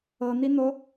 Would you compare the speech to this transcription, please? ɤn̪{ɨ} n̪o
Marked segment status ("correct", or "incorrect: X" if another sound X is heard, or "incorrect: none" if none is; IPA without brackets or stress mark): incorrect: i